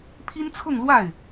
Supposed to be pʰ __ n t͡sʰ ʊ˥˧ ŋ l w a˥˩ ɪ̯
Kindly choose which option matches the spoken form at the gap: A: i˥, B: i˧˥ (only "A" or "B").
A